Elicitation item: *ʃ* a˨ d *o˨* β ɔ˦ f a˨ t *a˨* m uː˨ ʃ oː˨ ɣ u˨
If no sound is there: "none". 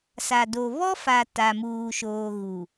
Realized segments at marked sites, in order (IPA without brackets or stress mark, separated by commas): s, o˨, a˨